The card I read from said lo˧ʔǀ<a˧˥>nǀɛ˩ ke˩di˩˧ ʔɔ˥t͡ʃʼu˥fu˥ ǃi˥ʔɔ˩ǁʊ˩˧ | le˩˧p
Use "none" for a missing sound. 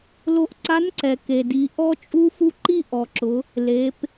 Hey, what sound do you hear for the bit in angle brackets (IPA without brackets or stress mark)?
a˧˥